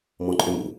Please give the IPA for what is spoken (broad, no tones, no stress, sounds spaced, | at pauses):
m ɔ̃ ǃʼ ʏ m ṵ